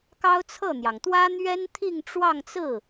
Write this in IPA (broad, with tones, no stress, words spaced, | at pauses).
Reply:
kɑ˥ʊ̯t͡sʰɤ˥˩n̪jɑ˩ŋ t̪wä˥ n̪ɥɛ˥nt̪ʰi˥˧ŋʈ͡ʂwɑ˥˧ŋt͡sɹ̩˥˩